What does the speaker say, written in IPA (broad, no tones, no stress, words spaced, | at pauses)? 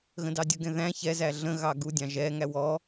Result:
ɣə̃dɑdʲəɡɛ̃ ðæ̃ çɛzæ ɮə̃ ɣɑɡudʲɑ̃ ʒɛŋæ wɔ